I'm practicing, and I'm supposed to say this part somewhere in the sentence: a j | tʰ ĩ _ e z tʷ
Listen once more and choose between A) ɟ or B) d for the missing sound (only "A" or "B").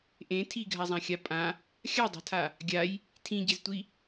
A